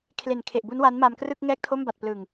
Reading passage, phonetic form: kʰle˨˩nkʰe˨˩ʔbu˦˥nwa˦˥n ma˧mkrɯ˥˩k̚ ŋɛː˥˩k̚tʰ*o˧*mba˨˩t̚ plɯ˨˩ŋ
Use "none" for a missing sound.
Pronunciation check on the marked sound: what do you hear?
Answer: o˥˩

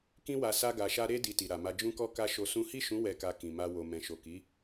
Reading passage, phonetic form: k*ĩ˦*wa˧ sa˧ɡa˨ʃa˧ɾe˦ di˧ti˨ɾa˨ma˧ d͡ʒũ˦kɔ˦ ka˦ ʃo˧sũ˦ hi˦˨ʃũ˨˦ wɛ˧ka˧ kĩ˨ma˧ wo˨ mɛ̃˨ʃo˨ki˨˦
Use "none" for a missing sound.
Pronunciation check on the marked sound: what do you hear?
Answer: ĩ˦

